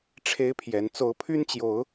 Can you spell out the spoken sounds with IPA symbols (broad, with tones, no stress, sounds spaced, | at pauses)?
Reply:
ʈ͡ʂʰ e˦ ɪ̯ pʰ j ɛ˨˦ n t͡s o˨˦ ʊ̯ pʰ y˦ n t͡ɕ j o˨˦ ʊ̯